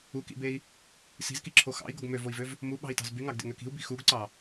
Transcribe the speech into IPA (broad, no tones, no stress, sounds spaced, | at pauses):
u k ḭ b e i̯ | s i̤ z k i ǁʰ o x ɑ̰ i̯ ɡ o ɡ m ø v o i̯ v ø v | m u ɓ ɑ̤ i̯ t ɑ̤ z b y ŋ ɑ ɡ d ḛ ŋ ø k i̤ u̯ b i̤ x u ɡ ǀ ɑ